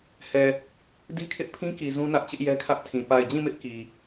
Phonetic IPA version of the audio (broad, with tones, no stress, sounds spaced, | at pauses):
h ɛ˨ | d i˦ kʰ ɪ˦ ʔ pʰ ĩ˦ k i˨ z ũ˦ n ä˦ ʔ t͡ɕ ɪ˦ ʔ j ɛ˦ kʰ ä˦ ʔ tʰ ĩ˨ p a˨ ɪ̯ d͡ʑ ĩ˦˨ m ɪ˦ ʔ k i˨